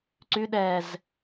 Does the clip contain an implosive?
yes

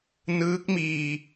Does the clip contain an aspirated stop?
no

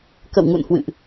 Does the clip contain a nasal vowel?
no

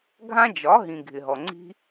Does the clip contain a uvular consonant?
no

